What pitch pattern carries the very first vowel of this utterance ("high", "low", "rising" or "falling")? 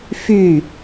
falling